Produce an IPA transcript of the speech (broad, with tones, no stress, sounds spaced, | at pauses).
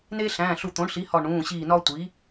n eː˦ ɬ æ̃ː˩˧˩ ɬ u˧˩ t̪ õ˩˥ ɳ ɬ i˩˥ h ɒ˧˩ ɳ ũː˩˧˩ ɕ iː˧˩ n ɒ˦ tʷ i˩˥